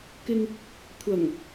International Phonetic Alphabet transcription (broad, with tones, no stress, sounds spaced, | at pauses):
k ɪ˧ ŋ | kʷʰ ɐ˨˩ ŋ